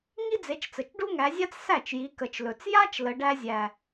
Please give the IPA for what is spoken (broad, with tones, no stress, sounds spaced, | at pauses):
ŋ i˥ d͡z e˨˦ t͡ʃ t͡s ə˨˩ t͡ʃ ɖ u˥ ŋ æ˨˦ zʲ a˥ t͡s s æ˥˩ t͡ʃ j i˨˦ k ə˨˩ t͡ʃ l ɵ˨˩ t͡s j a˥ t͡ʃ l ə˨˦ ɖ æ˥ zʲ æ˨˩